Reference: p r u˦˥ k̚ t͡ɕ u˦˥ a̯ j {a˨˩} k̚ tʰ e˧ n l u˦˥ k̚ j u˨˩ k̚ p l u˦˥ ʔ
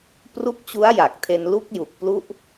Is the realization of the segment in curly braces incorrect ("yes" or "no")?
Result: no